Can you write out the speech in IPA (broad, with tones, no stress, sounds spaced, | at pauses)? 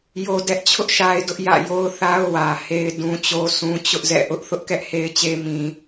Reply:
j o˦ d ɛ˦ ʔ t͡ɕʰ ʊ˦ ʔ ʃ a˦ ɪ̯ d ʊ˦ ʔ j ä̰˦˨ j o˦ ʊ̯ θ a˦ ʊ̯ w ä˨ h e˦ ɪ̯ d ũ˦ t͡ɕ o˦ s ũ˦ t͡ɕ ʊ˦ ʔ z ɛ̰˦˨ ʔ ʊ˦ ʔ θ ʊ˦ ʔ k ɛ˦ ʔ h e˦ ɪ̯ t͡ɕ e˦ m ĩ˦